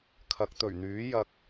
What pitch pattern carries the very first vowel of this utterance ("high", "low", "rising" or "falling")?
rising